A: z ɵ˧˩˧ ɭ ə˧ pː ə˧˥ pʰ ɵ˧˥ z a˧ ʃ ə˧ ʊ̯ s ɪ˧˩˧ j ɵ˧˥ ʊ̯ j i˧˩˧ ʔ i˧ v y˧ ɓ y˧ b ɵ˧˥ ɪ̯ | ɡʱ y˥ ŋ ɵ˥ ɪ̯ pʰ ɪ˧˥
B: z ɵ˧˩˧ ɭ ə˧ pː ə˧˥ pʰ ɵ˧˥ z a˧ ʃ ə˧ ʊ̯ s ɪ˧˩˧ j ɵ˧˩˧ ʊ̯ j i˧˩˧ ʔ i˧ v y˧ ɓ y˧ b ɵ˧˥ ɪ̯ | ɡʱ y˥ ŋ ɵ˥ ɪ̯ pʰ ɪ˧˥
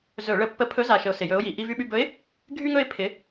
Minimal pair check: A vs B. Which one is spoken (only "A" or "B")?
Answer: A